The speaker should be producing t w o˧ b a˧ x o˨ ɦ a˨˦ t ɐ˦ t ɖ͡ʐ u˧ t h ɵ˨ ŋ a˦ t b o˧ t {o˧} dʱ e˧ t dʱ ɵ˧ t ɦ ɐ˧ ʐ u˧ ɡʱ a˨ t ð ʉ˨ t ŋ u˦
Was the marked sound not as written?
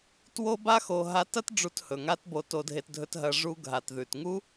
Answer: no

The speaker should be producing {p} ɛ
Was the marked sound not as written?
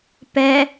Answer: no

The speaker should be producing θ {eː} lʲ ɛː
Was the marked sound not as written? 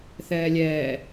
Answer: yes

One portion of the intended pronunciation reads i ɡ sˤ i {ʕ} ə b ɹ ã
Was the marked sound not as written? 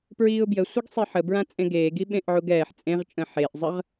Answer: yes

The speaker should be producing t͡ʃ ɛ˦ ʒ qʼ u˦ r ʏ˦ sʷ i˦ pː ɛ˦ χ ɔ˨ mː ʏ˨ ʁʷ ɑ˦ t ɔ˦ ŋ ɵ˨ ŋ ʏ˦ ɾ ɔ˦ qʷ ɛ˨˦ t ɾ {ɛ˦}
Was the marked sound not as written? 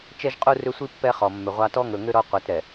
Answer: yes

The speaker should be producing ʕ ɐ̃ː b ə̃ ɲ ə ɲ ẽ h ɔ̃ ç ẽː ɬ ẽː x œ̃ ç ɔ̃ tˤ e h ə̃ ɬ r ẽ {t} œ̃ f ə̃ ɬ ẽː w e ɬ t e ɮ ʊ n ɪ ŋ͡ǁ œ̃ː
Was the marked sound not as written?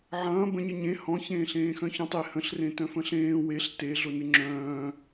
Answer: no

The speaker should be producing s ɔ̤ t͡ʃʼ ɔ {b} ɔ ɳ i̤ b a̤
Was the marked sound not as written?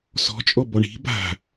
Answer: no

